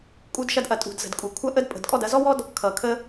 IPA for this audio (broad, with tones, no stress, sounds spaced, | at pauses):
kʼ u˧ d ʃ ɐ˧ d ʔ ɐ˨ tʼ ṳ˨ d z ə̤˨ d kʼ u˨ kʷʰ ɐ˦ ʔ ə˦ d pʼ ə̤˨ d kʼ ɔ˦˨ d ɐ˧ z ɔ˦ w ɔ˦ d | kʰ ʌ˨ kʰ ə˧